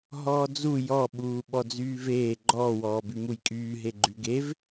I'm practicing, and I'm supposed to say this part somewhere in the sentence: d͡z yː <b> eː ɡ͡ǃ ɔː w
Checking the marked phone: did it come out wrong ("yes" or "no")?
yes